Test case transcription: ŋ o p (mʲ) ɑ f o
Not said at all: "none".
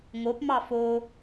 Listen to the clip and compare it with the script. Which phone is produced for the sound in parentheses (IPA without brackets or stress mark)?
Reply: m